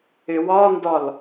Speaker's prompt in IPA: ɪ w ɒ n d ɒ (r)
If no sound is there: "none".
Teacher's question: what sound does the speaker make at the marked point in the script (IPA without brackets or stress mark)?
l